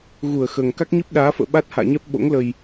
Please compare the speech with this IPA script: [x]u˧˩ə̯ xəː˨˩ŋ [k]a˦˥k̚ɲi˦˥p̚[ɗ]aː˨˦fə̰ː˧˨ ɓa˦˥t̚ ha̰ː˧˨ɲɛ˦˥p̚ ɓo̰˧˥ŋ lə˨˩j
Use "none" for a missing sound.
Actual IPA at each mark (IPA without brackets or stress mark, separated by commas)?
ɣ, k, ɗ